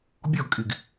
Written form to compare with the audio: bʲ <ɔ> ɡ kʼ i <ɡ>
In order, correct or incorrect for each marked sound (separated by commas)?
correct, correct